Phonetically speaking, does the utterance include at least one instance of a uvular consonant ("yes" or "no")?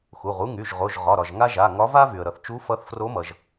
yes